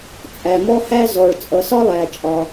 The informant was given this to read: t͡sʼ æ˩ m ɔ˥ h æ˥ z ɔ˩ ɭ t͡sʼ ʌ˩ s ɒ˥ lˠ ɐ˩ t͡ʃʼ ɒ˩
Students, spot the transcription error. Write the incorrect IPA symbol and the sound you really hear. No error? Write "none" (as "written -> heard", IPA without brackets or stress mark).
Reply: ɐ˩ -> æ˩